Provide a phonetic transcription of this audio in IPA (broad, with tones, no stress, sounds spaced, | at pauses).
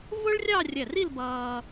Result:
v ʊ˥ ɭ rʲ ɑ˥˧ rʲ ɛ˧˩ r i˥˧ l b ʌː˧